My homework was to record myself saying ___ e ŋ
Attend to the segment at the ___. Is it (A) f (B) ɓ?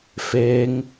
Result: A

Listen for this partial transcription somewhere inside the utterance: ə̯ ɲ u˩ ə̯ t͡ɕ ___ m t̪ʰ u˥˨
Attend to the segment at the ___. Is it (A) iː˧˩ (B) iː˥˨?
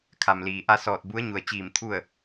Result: A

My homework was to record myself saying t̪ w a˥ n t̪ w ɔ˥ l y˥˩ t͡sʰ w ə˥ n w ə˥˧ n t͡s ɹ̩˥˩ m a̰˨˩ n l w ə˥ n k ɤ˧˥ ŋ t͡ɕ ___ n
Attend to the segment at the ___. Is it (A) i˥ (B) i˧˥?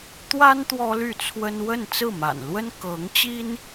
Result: A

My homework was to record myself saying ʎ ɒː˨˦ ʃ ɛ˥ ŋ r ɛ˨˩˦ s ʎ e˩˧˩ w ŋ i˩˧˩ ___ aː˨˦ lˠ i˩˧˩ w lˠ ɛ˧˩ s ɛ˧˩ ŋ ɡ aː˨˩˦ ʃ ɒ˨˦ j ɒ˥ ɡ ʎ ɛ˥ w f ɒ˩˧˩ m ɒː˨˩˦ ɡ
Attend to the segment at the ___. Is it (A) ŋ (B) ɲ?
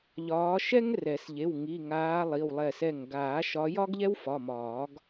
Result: A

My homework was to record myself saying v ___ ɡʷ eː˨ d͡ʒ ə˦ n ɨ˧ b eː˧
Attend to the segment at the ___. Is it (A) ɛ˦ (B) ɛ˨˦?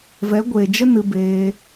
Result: B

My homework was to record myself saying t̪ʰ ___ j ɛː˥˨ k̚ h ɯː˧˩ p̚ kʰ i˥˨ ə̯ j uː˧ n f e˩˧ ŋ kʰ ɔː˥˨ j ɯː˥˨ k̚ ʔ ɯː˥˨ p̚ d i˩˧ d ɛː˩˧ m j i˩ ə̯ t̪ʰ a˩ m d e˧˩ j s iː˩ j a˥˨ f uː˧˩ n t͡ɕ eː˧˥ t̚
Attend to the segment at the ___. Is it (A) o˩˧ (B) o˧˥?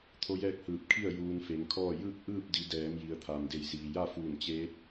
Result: B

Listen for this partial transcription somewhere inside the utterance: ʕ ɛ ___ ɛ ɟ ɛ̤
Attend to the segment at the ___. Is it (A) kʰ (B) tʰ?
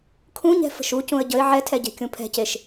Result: B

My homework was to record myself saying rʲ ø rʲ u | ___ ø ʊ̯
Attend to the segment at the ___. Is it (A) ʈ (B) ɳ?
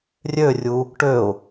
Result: A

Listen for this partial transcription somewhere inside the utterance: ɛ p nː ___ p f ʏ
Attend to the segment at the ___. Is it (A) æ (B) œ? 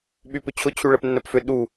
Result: B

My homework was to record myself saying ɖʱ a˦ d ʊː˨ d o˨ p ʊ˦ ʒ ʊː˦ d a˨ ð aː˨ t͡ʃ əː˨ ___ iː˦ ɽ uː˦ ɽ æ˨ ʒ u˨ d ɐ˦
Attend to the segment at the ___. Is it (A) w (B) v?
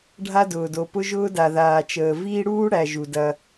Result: B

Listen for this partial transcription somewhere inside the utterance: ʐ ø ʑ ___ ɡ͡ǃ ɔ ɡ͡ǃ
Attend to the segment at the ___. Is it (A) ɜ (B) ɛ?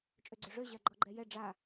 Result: A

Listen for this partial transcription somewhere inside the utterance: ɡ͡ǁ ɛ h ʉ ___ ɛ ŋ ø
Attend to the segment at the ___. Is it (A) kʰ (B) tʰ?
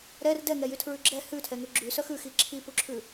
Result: B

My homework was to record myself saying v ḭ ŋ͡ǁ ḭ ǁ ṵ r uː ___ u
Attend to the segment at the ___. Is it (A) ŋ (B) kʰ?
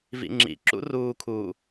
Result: B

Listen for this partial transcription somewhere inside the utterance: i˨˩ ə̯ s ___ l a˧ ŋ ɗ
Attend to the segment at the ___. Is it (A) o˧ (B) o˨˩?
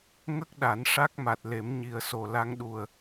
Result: B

